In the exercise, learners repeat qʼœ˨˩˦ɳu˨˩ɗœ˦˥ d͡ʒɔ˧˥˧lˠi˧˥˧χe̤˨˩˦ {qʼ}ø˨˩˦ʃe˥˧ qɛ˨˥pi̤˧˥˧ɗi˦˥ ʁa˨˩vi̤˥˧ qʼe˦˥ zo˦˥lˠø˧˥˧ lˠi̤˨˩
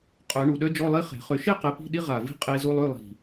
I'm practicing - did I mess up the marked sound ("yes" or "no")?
yes